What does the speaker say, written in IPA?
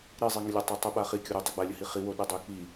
ɾ i zˤ i ŋ ə lʲ o tˤ a tˤ i ɓ a χ i kʲ o ɾ y tˤ ə ɡ͡b a lʲ ə h i χ i w o ɗ i dˤ y k͡p i

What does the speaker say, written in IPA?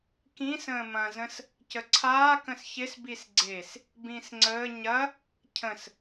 k ĩ s ə̃ː m ɐ̃ z ə̃ s | c ə ǀʰ aː k ə̃ s ç ɪ s b i s ɡ͡ǀ e s | b ĩ s ŋ͡ǀ əː ɲ ɐ | cʰ ə̃ s

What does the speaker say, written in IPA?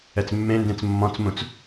ɛ t͡s mː ẽ n d ẽ t͡s mː ɔ̃ t͡s m ũ t͡s

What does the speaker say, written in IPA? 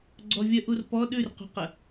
ɡ͡ǀ ɔ vʲ ə ʔ u r p ɔ ɗ ʉ r q ṳ q ə

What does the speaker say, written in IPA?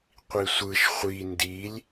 qʷ i sʷ ɯ ʃ χʷ i n d i lʲ

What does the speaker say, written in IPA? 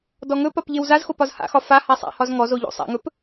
d ɔ ŋ ɵ p ɒ p ʎ e w z a z x o p ɒ z h a̰ x ɒ f a h a sˤ a̰ h ɒ z ŋ ɔ z o ʎ o̰ sˤ a̰ ŋ ɵ p

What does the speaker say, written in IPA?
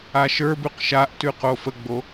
a ʃ ə˞ b ʉ q ʃ a ʔ t ʉ q o f ə ɡ͡b o

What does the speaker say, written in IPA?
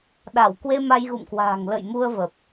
ɗ a˧˩ w k w e˧ m a˧ j ɣ ṵ˧˨ m k w a̤ː˨˩ ŋ l ə̰˧˨ j m u˧ ə̯ v ə˨˩ p̚

